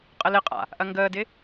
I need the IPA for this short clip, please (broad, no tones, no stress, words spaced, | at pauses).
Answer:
qʼəlɪqʼa̰ | ʔɐŋɡəːdɪ